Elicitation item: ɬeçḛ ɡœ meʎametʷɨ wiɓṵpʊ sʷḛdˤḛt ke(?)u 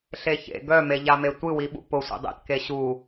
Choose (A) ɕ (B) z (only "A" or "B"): A